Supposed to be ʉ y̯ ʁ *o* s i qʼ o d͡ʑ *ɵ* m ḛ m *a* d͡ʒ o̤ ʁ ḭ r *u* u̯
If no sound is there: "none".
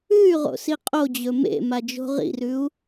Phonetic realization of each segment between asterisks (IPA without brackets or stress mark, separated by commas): o̰, ɵ, a, ʉ